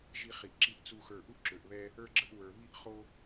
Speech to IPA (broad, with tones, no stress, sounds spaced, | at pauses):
ʒ i˧ χ i˨ ʔ ǁ i˧ ʔ t͡s u˨ x ə˞˨ ʔ u˦ ʔ ǁ ø˨ ʔ β ɛ˧ | ə˞˧ ɡ͡ǁ ə˧ ʔ w ə˞˨ β i˦ ʔ χ o˦